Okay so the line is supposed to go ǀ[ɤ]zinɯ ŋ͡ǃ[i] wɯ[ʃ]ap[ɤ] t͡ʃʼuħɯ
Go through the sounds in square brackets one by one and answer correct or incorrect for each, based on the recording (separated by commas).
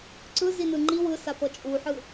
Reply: incorrect, correct, incorrect, correct